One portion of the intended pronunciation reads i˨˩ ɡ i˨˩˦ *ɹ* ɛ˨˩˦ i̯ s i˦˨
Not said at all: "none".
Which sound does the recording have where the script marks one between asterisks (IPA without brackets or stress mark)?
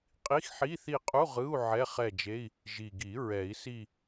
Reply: ɹ